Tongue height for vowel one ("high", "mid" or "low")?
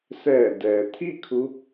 mid